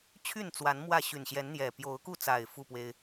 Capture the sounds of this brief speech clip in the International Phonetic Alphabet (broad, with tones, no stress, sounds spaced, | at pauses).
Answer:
t͡ɕʰ y˥˨ n t͡s w a˨˦ n m w ä˥˨ ɕ y˨˩ n ɕ j ɛ˨˦ n n̪ j ɛ˨˩ p j o˨˦ ʊ̯ k u˥˨ t͡s a˨˩ ɪ̯ f u˥˨ p w e˦ ɪ̯